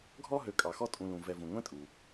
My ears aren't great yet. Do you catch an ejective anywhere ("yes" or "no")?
yes